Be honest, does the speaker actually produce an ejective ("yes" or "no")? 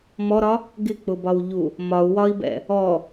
no